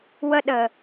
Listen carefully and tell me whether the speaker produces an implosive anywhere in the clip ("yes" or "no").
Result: yes